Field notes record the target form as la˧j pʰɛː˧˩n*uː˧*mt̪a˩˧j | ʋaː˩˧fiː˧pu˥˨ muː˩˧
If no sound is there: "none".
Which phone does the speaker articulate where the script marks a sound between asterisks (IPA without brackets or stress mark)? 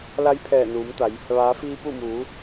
uː˩˧